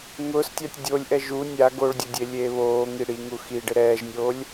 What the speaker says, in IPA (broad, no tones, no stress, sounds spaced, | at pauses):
ŋ ʊː s tʲ a tʲ dʲ o lʲ ʔ ɛ ʒ u nʲ a ɡ o ɭ dʲ o dʲ e lʲ eː β oː ŋ i ɽ i ŋ u x i ɖ ɪ ɾ ɛː ʒ nʲ oː lʲ